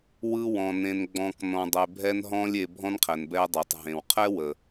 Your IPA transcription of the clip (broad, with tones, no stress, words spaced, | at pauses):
wɯ˥wɔ̃˧ nẽ˧nɡ͡bɔ̃˧k nɔ̃˧dˤe˧ bʱɛ˥nɦɔ̃˥lʲe˧ bʱɔ̃˥nqʰɛ˩n bɛ˧dˤɛ˩tˤ ɦẽ˩wqʰɛ˥wə˩